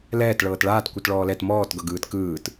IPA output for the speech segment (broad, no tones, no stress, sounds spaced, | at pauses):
l ɛː t ɭ ɤː t ɭ aː t kʷ ɯ t ɭ ɔː l ɛ t m ɔː t ɡ ɤ ɡ ɯː t k ɯː t